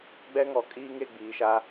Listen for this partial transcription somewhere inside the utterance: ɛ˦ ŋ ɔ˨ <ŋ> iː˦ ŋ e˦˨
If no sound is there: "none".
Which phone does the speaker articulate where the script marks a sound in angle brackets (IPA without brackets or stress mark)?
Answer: kʼ